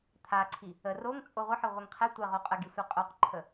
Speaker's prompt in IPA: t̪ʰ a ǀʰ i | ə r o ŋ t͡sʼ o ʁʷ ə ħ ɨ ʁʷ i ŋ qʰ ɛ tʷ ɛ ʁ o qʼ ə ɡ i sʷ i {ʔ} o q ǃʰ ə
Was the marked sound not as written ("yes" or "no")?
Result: yes